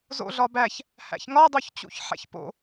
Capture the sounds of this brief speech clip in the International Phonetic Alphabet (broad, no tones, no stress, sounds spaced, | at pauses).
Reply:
z o̰ ɮ ɒ b æ ç | h æ̰ ç ŋ ɒ dˤ o ç t͡ɕ ṵ ç ħ æ̰ ç p o̰